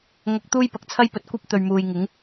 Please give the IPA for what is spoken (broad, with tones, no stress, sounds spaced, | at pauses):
ŋ ɐ˧ k̚ t̪ uː˥ j p ɐ˨ k̚ t͡sʰ ɐ˥ j p ɵ˨ t̚ kʷ ɐ˥ p̚ t̪ ɵ˨ ɥ m uː˨ j ŋ ɪ˨˥ ŋ